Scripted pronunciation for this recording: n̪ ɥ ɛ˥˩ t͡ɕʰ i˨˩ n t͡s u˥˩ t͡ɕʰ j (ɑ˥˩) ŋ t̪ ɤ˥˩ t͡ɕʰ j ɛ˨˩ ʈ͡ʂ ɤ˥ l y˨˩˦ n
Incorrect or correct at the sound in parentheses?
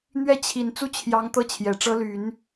incorrect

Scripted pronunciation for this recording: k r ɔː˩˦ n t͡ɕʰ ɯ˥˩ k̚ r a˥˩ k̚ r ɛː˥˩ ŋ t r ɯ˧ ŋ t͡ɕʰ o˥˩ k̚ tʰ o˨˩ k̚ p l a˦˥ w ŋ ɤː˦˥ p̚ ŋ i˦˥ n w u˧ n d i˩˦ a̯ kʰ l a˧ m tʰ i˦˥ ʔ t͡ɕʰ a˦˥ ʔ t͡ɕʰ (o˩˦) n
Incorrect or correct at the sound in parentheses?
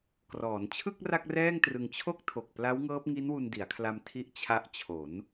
correct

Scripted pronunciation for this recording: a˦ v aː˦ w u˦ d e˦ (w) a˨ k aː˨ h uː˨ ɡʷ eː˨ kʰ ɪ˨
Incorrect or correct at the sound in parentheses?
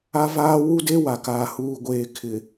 correct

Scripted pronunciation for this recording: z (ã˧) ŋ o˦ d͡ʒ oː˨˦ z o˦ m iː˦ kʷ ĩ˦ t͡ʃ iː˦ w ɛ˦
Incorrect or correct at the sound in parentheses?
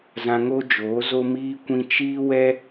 correct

